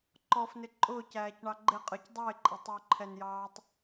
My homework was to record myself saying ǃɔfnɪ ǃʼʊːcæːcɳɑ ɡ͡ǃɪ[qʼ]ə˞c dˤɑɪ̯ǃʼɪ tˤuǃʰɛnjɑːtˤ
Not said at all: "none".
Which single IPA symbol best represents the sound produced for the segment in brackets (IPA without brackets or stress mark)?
qʼ